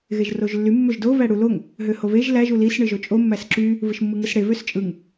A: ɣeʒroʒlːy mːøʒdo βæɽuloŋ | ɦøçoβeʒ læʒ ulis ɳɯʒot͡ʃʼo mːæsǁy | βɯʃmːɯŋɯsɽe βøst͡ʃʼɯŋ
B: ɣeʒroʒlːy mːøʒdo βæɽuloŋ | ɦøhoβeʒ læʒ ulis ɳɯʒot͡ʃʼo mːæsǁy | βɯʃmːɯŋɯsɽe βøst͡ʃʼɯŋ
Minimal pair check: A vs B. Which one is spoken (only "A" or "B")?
B